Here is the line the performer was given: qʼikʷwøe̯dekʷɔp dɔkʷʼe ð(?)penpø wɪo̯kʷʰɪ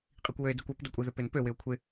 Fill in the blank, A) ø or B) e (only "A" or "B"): A